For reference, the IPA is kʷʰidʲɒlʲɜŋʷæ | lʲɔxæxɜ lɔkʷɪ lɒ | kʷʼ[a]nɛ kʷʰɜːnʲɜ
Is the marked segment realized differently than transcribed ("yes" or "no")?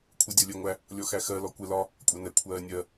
yes